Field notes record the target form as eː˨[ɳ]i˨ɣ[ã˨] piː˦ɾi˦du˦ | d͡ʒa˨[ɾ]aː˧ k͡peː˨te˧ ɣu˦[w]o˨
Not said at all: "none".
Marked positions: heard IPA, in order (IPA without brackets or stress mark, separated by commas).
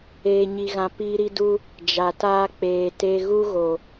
ɲ, ã˨, t, ɣ